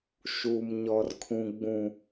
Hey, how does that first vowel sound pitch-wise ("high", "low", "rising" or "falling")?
low